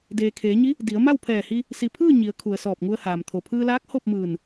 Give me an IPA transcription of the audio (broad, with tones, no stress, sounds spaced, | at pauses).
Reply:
d eː˩ kʰ eː˩˧ ɲ i˧˥ | d i˩˧ ə̯ m a˥˨ w pʰ ɛː˧˩ h i˧ | s i˩ pʰ ɯː˥˨ ɲ i˩˧ ə̯ kʰ u˩ ə̯ s ɔː˧˩ p̚ ŋ u˧ ə̯ h aː˩ m t̪ʰ o˩ pʰ ɯː˧ l aː˧˥ k̚ h o˥˨ p̚ m ɯː˧˩ n